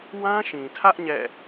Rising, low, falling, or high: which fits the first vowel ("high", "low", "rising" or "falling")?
high